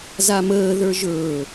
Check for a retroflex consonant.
absent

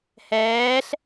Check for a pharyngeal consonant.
absent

